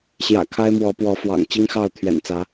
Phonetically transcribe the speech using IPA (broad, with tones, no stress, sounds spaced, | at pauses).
ɕ j ä̰˨˩ kʰ a˦ ɪ̯ m w ɔ˨˦ p w ɔ˨˦ f w ɑ̰˨˩ ŋ t͡ɕ i˦ ŋ x ɑ˥˨ ʊ̯ t̪ʰ ɥ ɛ̰˨˩ n t͡s ä˨˦